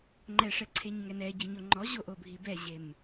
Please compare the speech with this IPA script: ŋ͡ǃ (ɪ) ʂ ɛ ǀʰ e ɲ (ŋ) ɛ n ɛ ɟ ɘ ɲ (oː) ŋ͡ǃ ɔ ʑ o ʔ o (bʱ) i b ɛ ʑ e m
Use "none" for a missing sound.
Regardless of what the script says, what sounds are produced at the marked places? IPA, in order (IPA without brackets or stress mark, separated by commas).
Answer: ɛ, ŋ, o, bʱ